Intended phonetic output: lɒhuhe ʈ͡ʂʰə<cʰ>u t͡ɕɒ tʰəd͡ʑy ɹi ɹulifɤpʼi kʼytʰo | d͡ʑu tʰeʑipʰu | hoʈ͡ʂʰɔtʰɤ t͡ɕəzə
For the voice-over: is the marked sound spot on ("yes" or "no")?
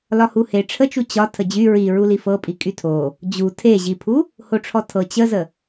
no